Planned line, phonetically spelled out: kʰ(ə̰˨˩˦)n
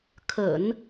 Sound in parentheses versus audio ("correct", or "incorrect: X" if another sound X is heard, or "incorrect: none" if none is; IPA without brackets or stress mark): correct